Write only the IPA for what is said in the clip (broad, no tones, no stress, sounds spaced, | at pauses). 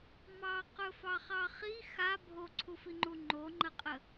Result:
m ɑ q ɵ f ɑ χ ɑ χ i x a bʱ o ǀʰ u f i ŋ͡ǃ u ŋ͡ǃ o ŋ͡ǃ ə qʼ ə